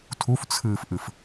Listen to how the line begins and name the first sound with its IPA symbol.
tʰ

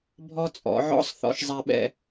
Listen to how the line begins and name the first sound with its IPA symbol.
bʱ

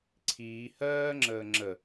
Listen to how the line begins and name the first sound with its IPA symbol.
ǀʰ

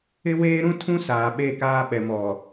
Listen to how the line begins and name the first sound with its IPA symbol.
ɪ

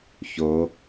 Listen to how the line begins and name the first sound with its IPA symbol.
ç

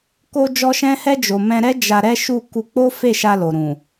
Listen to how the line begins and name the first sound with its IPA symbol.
k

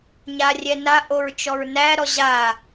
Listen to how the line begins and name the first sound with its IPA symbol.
ɲ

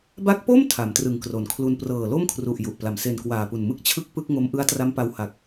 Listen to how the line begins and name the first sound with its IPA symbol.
b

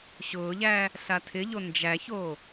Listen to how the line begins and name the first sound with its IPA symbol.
ɕ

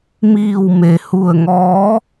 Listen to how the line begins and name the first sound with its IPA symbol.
m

